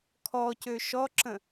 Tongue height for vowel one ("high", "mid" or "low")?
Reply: mid